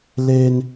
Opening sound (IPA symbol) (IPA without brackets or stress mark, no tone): l